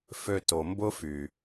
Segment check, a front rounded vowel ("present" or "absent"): present